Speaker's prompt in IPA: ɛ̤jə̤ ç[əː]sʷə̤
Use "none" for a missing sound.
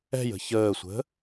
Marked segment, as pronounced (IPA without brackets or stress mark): əː